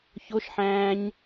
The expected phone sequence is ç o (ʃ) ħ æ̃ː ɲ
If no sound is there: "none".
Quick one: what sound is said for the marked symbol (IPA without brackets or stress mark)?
ʃ